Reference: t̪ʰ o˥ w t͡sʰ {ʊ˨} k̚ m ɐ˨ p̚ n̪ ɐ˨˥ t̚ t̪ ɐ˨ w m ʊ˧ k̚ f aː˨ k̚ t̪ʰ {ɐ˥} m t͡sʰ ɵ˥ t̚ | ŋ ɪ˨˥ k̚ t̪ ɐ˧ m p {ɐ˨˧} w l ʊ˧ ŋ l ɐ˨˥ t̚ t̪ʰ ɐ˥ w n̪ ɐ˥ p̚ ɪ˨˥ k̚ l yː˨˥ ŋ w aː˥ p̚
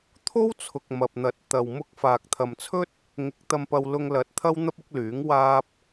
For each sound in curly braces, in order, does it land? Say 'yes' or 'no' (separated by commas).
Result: yes, no, no